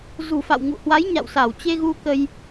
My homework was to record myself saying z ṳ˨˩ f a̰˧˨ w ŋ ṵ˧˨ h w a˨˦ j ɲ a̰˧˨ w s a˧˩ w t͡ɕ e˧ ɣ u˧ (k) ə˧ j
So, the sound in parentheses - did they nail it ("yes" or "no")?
yes